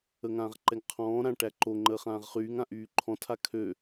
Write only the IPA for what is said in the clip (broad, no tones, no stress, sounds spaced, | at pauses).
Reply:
ə ŋ ãː ʁ ǃ ɛ ŋ qʰ ɔ̃ː ɾ ã ʈ æ ǃ o ŋ͡ǃ əː χ ãː ʁ χ yː ŋ ã ʔ yː ǃʰ ɔ̃ tʰ a kʰ ø